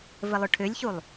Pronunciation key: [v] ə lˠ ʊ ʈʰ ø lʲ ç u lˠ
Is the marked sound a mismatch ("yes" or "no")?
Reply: no